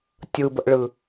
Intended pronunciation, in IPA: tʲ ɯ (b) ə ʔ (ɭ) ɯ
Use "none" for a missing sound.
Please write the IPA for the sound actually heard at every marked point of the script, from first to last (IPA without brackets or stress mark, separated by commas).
b, ɭ